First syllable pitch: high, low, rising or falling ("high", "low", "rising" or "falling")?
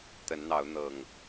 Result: rising